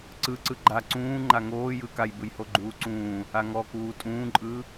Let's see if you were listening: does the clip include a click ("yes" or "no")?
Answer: yes